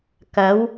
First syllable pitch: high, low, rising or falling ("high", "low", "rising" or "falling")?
rising